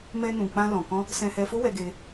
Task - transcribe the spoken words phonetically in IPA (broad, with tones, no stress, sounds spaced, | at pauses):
m ɛ˧ n ũ˨ k͡p ã˧ l ɔ̃˨ k ɔ̃˧ | s ɛ̃˧ h ɛ˧ f o˦ w ɛ˧ ɡ e˧